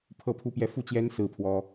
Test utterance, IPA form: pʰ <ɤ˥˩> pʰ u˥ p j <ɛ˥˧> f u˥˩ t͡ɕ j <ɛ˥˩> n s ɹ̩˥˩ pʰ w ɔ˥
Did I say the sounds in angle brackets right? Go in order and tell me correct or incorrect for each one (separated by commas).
correct, correct, incorrect